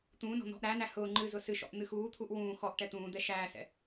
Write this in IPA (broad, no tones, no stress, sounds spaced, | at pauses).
t̪ ũː n ɔ̤ n̪ ɔ̤ ʔ ɾ æ n æ h ʊː ŋ͡ǃ ɨ z ʊ s ɨ ʃ ɔ̰ ʔ n̪ ɨ x uː t̪ʰ u ʔ w ũː x ɔ ʔ ʈ ɛ t̪ ũː d̪ ɛ ʃ æː s ɛ̰